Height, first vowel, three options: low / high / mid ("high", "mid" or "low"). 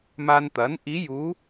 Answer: low